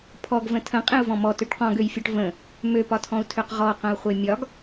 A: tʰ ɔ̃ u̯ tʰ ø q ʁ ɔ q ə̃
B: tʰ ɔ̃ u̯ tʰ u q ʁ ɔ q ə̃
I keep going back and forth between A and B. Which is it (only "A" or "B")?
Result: A